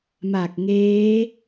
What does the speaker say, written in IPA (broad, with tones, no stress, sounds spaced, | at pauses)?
m a˨˩ k̚ ŋ eː˦˥